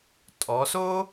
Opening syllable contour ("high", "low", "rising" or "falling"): rising